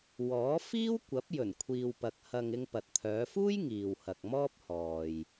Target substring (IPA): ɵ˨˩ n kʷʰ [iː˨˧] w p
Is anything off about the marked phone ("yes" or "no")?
yes